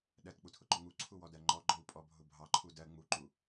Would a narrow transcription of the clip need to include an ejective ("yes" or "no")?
yes